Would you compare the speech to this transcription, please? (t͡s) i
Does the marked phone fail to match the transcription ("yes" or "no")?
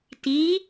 yes